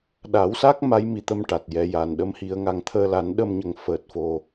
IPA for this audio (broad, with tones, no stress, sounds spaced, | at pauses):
ɗ a˨˩˦ w s a˦˥ k̚ m a˧˥ j m i˨˩ t̪ ə˧ m ʈ a˨˩ t̚ j ɛ˧ j a˨˩ n ɗ ə˧˥ m h i˨˩˦ ə̯ ŋ a˨˩ ŋ t̪ʰ əː˧ l a˨˩˦ n ɗ ə˧ m ɲ ə˨˩ ŋ f əː˨˩ t̚ f o˨˩